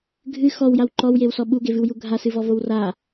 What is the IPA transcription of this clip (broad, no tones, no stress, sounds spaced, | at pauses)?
ɡʱ ɨ x ɔ w j a w ǃ ɔ w j e w s ɔ ɓ u ɡ e v ɨ w j u ɡʱ a s ɨ v ɔ v o w r a